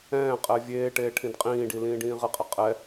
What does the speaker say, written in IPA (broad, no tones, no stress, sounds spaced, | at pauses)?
ɛ̃ː qʼ ɛ vʲ eː ʈ eː ʈʰ ĩ d qʼ ĩː ɖ i l ĩː ɖ ĩː ʁ ɪ qʼ ɛ qʼ ɛ